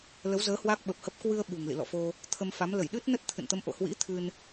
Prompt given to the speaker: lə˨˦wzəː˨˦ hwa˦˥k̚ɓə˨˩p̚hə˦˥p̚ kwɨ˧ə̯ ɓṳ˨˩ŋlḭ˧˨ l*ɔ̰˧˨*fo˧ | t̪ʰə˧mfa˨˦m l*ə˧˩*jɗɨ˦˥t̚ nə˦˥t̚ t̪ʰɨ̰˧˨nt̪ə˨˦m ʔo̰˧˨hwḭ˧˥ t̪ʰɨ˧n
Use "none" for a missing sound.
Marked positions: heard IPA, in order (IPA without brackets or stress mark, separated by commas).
ɔ̰˧˨, ə˧˩